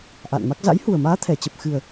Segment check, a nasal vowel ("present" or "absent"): absent